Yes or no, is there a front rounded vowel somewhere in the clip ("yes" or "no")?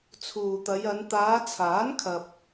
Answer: no